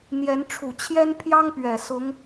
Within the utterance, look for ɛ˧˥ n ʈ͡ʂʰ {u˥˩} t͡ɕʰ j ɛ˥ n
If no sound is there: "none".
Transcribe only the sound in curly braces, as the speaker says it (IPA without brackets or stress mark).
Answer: u˨˩